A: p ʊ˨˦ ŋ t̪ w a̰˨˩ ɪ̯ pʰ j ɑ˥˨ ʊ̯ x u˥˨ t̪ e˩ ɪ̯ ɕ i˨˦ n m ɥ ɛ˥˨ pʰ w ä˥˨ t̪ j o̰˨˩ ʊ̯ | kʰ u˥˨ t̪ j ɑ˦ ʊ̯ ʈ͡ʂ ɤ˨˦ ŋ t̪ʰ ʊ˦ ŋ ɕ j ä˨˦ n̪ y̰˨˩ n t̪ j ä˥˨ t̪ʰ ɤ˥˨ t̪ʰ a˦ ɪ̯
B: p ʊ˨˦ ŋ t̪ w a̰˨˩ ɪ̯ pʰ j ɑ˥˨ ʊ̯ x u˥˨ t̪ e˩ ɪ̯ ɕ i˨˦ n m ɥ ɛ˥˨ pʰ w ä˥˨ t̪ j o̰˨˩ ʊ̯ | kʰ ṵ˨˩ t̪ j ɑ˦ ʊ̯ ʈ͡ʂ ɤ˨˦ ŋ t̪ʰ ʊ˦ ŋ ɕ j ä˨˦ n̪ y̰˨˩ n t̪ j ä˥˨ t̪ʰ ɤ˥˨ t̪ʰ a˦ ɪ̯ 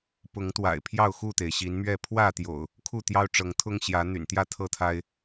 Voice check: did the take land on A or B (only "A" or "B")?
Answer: A